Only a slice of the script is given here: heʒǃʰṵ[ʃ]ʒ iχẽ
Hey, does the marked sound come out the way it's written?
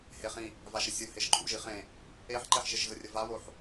no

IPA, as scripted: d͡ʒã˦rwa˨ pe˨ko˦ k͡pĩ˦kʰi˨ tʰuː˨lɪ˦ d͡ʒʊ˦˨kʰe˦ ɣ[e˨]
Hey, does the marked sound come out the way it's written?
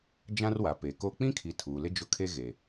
yes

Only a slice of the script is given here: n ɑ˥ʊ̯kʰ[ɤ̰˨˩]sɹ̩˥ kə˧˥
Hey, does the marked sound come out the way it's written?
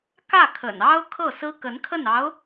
no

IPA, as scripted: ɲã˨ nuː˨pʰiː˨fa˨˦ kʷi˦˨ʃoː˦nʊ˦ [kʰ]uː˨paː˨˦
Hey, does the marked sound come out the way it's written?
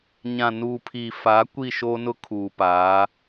yes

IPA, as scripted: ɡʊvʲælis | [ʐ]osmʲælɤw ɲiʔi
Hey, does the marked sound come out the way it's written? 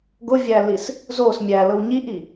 no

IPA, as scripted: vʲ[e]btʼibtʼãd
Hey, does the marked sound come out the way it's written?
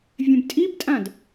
no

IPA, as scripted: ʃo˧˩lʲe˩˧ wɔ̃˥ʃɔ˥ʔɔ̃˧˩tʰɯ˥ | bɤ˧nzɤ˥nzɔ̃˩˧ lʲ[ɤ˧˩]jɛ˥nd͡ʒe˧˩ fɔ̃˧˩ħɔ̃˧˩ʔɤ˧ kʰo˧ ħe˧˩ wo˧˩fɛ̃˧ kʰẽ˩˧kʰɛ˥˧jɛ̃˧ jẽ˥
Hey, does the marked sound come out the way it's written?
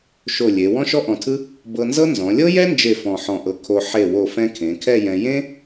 no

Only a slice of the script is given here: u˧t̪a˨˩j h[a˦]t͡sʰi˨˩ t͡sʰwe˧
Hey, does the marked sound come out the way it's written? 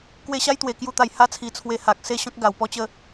no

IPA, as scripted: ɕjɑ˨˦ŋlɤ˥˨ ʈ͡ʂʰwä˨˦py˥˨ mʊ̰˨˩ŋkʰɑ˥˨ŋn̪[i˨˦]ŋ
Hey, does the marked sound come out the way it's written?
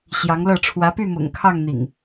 no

